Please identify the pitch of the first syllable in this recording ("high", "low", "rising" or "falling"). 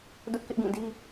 high